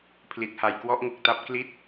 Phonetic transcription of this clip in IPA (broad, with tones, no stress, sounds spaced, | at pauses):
pʰ l i˨˩ t̚ h a˨˩ j k w ɔ˦˥ ʔ ŋ u˨˩ k̚ t a˦˥ p̚ k l i˦˥ t̚